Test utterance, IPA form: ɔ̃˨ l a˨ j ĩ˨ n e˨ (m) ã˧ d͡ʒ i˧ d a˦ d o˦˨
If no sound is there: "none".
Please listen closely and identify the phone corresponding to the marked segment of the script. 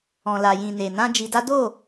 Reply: n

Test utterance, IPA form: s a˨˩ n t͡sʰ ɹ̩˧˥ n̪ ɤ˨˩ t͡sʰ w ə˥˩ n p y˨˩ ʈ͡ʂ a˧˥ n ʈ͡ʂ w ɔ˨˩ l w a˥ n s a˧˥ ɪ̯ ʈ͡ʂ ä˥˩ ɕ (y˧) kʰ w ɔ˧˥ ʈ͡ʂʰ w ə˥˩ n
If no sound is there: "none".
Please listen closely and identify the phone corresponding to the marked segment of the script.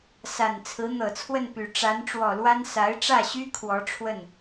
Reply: y˥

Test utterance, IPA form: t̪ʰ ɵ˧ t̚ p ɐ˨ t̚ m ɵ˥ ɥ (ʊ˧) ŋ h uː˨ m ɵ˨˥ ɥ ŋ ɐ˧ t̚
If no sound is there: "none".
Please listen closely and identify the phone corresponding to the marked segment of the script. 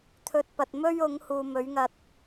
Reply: ʊ˨˥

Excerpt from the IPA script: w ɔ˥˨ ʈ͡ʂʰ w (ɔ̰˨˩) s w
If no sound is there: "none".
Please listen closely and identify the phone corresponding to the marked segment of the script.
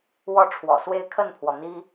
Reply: ɔ̰˨˩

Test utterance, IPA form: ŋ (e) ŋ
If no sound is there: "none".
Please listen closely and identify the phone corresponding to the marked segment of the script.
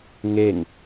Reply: e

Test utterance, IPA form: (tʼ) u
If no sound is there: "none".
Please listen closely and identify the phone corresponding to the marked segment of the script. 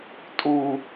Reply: tʼ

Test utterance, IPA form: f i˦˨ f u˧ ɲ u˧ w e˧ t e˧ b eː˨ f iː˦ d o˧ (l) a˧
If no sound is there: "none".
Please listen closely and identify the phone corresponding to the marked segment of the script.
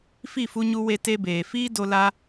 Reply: l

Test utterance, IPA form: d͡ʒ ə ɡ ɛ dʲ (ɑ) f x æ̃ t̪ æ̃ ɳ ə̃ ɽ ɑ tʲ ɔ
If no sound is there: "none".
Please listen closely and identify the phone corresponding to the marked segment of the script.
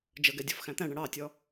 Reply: ɔ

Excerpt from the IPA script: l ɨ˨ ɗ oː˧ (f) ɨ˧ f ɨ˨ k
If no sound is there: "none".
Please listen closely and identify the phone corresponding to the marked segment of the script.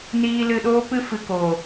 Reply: p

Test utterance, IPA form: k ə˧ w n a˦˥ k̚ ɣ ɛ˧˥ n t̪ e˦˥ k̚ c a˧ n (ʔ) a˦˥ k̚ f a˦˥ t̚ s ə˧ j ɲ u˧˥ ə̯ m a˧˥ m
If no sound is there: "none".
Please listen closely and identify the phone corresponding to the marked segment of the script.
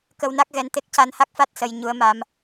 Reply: h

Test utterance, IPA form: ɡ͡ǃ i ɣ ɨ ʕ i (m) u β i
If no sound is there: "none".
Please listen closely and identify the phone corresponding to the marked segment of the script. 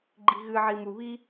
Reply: m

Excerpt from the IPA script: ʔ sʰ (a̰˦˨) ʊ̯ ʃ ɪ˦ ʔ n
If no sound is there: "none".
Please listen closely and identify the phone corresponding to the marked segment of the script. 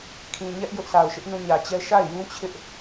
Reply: a˨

